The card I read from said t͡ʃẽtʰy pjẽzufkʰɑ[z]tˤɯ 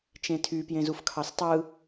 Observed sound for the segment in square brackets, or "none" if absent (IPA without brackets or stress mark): s